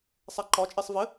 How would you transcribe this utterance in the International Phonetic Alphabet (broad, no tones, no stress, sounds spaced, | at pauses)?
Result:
sˤ ɛ ǃ ɒ t͡ʃʼ e sˤ v ɘ